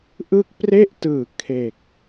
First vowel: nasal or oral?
oral